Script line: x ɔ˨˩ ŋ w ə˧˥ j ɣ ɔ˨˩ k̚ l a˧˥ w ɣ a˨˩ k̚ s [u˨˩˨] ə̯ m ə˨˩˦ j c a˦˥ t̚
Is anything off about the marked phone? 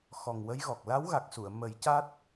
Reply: no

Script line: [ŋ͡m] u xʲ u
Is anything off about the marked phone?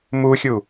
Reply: yes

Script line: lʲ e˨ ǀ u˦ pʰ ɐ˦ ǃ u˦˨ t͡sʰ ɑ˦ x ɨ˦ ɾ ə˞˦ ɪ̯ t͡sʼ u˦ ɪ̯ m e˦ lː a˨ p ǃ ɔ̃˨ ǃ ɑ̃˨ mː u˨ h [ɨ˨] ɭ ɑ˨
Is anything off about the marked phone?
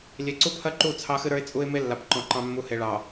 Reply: yes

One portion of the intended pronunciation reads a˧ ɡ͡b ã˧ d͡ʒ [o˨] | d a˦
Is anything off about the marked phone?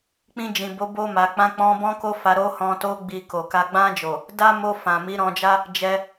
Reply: no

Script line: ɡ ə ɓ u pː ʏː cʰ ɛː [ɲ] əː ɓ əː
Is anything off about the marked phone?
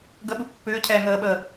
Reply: yes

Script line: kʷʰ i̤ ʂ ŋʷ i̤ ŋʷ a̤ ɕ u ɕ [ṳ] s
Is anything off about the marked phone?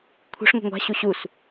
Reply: yes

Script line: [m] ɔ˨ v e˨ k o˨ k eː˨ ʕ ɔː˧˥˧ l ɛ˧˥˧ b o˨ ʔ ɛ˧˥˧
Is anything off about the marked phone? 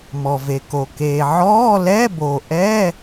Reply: no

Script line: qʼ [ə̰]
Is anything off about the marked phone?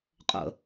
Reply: no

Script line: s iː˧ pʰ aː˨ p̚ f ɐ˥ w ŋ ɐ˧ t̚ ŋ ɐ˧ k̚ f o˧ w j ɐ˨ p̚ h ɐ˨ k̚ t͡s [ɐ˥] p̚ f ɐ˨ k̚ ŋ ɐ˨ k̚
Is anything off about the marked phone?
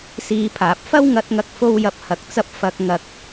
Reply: yes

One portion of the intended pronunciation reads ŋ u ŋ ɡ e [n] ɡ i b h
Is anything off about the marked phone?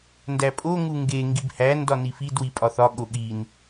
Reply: yes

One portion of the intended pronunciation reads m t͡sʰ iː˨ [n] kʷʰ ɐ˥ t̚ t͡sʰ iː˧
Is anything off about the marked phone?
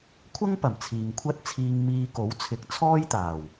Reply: yes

